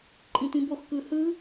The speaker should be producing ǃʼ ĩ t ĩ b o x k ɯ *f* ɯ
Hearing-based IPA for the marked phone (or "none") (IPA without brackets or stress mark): h